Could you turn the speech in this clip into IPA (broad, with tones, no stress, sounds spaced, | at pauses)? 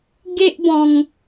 ɡ e˦ ʔ b ɔ̃˧ ŋ